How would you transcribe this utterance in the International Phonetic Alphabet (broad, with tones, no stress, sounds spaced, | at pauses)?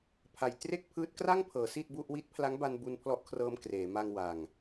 pʰ a˨˩ j t r e˥˩ k̚ pʰ ɯː˦˥ t̚ k r a˥˩ ŋ pʰ ɤː˩˦ s i˥˩ t̚ b u˥˩ ʔ w i˦˥ t̚ pʰ l a˦˥ ŋ b a˧ n b u˧ n pʰ l ɔ˦˥ ʔ kʰ r ɤː˧ m k r eː˩˦ m a˧ ŋ w a˨˩ ŋ